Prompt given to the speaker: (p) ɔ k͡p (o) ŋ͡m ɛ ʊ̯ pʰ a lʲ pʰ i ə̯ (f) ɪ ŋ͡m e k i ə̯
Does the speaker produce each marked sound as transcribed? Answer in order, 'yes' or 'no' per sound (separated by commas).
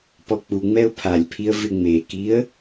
yes, no, no